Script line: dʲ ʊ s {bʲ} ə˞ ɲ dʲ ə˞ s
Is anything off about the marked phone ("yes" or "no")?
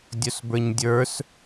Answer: yes